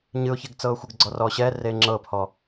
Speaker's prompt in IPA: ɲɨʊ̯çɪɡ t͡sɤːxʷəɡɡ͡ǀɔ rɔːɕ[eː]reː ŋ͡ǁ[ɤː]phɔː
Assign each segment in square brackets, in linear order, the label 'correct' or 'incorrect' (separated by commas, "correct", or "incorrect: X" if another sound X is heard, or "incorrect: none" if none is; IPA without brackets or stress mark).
incorrect: ɛː, correct